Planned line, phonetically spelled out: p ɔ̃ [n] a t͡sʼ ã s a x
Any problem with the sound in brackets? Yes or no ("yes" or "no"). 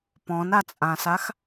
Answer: no